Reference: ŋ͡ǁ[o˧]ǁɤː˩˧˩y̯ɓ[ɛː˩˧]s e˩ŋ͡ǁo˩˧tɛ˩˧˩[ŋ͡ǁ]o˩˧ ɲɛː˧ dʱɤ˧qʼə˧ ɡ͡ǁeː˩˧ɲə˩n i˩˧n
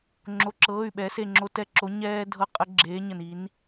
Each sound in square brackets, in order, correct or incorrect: incorrect: o˩˧˩, correct, incorrect: ǁ

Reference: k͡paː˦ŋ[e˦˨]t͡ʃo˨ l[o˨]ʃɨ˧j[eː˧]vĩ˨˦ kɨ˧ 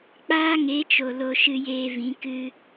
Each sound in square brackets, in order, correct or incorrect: incorrect: e˨˦, incorrect: o˧, correct

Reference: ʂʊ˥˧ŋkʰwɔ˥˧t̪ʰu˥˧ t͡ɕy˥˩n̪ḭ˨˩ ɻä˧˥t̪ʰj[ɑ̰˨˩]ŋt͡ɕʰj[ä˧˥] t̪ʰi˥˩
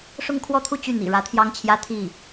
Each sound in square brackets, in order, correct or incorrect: incorrect: ɑ˥, incorrect: ä˥

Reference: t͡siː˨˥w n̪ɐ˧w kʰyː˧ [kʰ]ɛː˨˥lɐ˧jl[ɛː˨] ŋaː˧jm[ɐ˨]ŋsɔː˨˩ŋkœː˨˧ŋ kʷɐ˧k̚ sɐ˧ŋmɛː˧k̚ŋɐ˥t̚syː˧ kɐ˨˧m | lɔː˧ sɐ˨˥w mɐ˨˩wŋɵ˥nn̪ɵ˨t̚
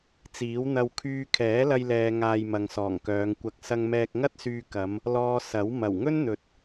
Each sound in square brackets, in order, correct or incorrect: correct, correct, correct

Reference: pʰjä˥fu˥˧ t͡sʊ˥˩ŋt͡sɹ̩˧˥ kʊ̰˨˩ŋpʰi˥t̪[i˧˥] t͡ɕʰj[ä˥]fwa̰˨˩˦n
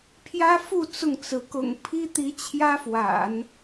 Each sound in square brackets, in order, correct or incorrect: correct, correct

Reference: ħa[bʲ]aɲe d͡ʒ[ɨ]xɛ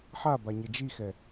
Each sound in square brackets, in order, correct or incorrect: incorrect: b, incorrect: i

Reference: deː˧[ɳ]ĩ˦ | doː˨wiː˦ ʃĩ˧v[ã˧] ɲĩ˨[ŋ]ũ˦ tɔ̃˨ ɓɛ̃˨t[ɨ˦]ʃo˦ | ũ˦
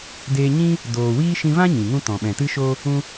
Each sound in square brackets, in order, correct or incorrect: incorrect: ɲ, incorrect: ã˦, correct, correct

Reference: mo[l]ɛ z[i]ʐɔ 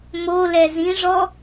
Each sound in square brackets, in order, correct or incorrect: correct, incorrect: ĩ

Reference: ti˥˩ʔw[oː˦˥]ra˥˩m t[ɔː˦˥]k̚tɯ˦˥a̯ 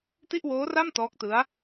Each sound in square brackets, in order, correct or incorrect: correct, correct

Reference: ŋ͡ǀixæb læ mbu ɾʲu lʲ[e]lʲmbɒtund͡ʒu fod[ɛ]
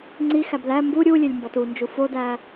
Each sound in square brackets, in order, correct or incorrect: correct, incorrect: æ

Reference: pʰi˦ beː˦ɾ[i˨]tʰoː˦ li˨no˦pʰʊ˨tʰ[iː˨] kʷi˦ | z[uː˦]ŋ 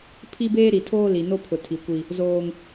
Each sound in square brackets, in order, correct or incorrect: correct, incorrect: i˨, incorrect: oː˦

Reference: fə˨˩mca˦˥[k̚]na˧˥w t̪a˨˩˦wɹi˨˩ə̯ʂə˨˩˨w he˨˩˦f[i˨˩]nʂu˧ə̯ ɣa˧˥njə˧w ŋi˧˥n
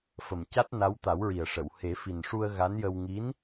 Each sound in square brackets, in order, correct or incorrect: incorrect: t̚, correct

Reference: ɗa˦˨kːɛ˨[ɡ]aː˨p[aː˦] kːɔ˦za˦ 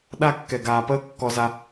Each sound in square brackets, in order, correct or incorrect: correct, incorrect: əː˦

